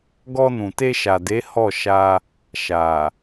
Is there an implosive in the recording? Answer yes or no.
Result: no